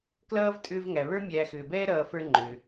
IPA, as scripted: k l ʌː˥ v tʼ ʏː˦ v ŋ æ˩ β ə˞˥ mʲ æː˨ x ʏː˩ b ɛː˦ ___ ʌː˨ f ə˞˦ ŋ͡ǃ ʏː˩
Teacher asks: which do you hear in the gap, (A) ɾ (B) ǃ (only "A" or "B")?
A